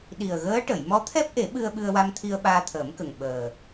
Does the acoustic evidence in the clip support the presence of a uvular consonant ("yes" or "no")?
no